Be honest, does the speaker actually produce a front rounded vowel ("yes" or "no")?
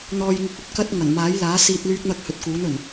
yes